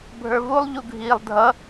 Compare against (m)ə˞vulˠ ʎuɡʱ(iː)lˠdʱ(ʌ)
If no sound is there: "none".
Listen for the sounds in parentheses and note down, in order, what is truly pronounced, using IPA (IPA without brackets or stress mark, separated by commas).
bʱ, iː, ʌ